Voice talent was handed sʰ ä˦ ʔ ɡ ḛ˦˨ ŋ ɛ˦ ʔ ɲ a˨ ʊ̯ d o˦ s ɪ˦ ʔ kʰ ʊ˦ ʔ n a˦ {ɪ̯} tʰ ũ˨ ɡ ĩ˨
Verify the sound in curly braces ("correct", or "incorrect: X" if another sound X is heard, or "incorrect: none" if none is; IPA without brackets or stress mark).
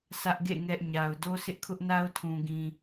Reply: incorrect: ʊ̯